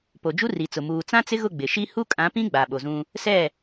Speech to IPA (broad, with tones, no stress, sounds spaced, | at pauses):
p o˨ d͡ʒ u˦ r i˨ t͡s ʊ˨ m uː˨ t͡s ã˦ t͡s ɪ˦ ɣ ʊ˦˨ ɡ͡b ɪ˨ ʃ i˦ h u˦ kʼ ã˨˦ p ĩ˦ ɡ͡b a˨ ɓ o˨ z ũ˦ | s ɛ˦˨